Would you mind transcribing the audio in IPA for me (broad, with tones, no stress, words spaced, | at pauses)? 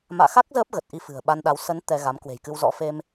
ma̰ː˧˨xa˦˥k̚ zəː˦˥p̚ɣə˨˩t̚ ʔi˧fɨ̤˨˩ə̯ ɓa˧nɗa˨˦w sə˨˦n t̪ɛ˧ɣa˨˦m kwe̤˨˩jkɨ˧wzɔ̰˧˥ fe˧m